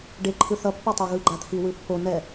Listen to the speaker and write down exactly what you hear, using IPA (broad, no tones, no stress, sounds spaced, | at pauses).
ɖ e ǃʰ ɯ θ ʌ pː ʌ tˤ a ɣ ɯ ɡ͡ǃ a t̪ʰ i w ɯ pː o n ɛ